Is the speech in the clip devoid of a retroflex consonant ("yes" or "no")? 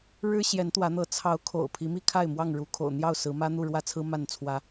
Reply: no